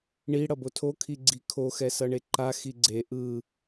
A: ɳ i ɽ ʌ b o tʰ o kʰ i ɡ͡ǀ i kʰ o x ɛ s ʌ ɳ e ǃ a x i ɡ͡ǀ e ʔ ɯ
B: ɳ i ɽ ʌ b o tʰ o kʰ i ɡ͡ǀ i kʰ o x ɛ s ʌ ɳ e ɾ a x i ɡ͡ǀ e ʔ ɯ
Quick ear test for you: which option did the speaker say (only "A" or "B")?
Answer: A